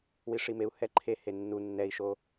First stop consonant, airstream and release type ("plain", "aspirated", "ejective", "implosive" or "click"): click